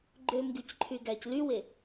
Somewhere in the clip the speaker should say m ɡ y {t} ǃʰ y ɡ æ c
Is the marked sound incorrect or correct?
incorrect: c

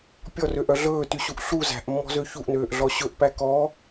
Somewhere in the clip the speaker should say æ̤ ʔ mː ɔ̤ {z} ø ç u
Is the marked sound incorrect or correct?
correct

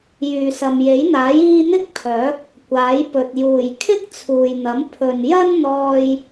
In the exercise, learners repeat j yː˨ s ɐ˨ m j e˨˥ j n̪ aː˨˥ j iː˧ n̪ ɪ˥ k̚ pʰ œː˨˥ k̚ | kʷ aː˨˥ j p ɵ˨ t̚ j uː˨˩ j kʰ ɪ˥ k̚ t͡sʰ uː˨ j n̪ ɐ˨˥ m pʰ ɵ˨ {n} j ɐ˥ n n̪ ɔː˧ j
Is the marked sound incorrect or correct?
correct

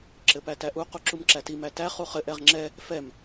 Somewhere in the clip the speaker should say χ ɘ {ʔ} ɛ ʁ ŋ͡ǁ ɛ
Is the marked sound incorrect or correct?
correct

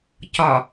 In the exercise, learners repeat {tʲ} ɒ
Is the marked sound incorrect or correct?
incorrect: c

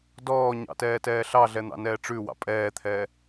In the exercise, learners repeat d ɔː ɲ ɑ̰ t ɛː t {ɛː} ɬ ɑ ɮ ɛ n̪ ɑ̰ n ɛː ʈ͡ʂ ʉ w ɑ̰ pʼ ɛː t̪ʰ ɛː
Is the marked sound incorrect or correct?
correct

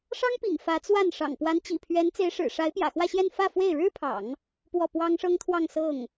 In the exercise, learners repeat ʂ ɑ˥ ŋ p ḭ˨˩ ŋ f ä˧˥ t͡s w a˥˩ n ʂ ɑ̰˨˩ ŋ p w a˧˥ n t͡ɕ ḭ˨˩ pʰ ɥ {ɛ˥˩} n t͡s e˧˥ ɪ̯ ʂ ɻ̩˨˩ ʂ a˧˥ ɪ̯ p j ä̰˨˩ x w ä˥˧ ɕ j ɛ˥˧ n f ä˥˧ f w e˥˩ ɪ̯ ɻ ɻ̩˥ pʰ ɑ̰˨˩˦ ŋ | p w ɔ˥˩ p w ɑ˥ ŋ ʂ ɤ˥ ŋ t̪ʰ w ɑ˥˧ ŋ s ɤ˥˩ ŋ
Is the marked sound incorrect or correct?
incorrect: ɛ˧˥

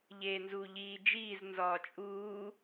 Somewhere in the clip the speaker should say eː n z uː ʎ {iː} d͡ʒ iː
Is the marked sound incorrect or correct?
correct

